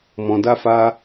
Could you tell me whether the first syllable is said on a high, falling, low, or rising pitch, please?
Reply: low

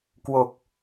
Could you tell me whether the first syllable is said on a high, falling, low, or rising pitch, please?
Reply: low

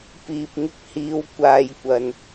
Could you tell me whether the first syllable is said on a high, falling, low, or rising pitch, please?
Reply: low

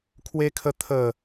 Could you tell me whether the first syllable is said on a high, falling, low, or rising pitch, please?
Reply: high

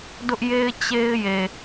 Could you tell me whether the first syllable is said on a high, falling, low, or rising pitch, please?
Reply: high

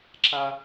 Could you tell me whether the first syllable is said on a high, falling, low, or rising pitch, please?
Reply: high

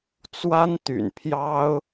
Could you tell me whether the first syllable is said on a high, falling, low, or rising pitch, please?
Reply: high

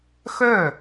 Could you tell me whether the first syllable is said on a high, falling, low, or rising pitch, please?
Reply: falling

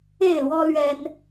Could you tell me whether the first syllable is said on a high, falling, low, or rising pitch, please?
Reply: falling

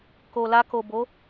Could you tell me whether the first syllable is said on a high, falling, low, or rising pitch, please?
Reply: low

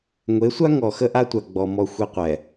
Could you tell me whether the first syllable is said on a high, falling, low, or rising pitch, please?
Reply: rising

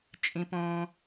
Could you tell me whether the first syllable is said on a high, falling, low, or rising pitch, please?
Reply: low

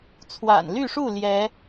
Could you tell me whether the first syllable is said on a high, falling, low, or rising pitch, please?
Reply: low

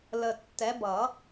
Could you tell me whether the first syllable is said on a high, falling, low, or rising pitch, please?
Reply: low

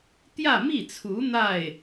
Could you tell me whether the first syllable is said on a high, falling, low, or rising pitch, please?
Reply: falling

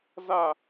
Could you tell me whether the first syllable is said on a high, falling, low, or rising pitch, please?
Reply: falling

